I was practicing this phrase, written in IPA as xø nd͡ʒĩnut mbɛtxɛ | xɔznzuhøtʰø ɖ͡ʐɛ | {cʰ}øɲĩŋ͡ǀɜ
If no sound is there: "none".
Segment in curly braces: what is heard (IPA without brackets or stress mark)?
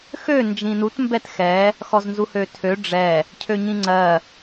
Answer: cʰ